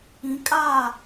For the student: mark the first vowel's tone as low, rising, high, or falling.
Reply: rising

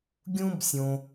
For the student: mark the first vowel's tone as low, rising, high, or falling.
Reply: high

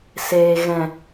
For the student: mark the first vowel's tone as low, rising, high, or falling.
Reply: low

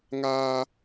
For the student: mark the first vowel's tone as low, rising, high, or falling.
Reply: high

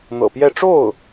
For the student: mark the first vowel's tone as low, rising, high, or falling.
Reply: low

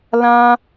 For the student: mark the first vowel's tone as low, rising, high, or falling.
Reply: high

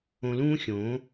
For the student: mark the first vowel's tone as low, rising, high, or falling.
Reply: low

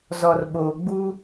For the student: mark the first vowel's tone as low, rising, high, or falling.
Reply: low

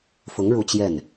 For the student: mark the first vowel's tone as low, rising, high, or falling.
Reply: rising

